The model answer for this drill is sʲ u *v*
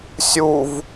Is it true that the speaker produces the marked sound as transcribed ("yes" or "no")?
yes